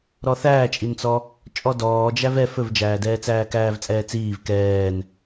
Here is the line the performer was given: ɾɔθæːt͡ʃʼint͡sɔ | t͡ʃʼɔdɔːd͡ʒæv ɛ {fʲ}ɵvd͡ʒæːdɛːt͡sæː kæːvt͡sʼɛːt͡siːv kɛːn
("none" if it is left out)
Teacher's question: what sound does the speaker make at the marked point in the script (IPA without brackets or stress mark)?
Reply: f